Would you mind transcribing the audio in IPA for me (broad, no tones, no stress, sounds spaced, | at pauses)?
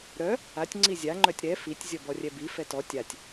ɾ œ | a tʲ ŋ͡ǀ i zʲ a ŋ͡ǃ œ tʲ ɾ ɛ f i tʲ zʲ ɔ b ɔ rʲ ɛ b i f ɛ t ɔ tʲ a tʲ